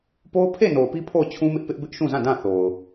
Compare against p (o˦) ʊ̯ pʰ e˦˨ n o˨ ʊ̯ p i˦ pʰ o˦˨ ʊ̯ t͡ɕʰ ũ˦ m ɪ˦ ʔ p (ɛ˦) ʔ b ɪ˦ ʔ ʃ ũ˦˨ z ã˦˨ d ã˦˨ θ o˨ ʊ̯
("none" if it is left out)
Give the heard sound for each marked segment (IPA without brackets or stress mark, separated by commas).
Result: o˦, ɪ˦